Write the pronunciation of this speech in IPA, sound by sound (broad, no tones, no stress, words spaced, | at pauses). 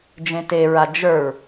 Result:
d͡ʒẽteɹa d͡ʒə˞ɹ